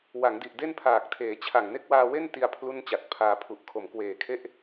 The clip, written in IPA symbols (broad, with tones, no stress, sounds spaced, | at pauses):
w a˩˦ ŋ d i˨˩ ʔ d e˥˩ n pʰ aː˨˩ k̚ tʰ eː˩˦ t͡ɕʰ a˨˩ ŋ n e˦˥ k̚ w aː˧ w e˥˩ n t i˧ a̯ pʰ l u˥˩ n t͡ɕ a˨˩ t̚ pʰ aː˧ pʰ u˨˩ ʔ kʰ o˩˦ m k w eː˨˩ kʰ e˥˩ ʔ